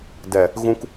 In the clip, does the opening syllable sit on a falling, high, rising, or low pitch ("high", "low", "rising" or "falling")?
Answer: low